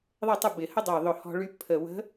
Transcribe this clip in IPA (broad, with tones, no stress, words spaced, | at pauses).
ðˤɛ˥˨tˤʊ˥˨ bɪ˧˩˧hə˥dˤø˧˩ ðˤʊ˧˩hɔ̤˧ɭy˧ pʰə˧˩ wə̤˧˥